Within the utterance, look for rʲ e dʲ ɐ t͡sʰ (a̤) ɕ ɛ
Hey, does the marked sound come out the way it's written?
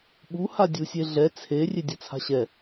yes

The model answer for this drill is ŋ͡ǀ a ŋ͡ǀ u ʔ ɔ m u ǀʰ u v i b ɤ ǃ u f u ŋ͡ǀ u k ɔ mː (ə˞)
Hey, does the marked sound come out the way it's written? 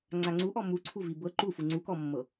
no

